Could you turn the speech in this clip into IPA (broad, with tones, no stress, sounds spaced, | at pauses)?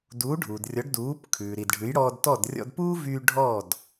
d uː˩˥ ɖʱ uː˩ d rʲ ɔ˩˥ ɖ d uː˩˥ p kʰ ʉː˩ ɾ i˩ d ɖʱ ʉ˩˥ j ɽ ɔː˧ d t ɔ˥˩ d rʲ ɔ̰˧ d p uː˥ v yː˧ ɖʱ ɔ˥˩ d